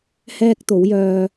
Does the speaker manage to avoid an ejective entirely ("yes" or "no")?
yes